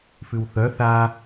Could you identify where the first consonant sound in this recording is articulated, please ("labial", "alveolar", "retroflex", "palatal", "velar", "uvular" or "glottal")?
labial